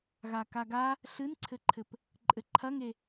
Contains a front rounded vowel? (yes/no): no